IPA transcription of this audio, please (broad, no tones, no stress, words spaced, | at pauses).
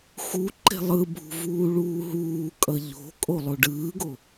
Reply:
xu ǃe̤lˠɯbʱṳ vuːɭuːɦuːkʼʌ ʎo̤kʼo lˠoɖɯːɡo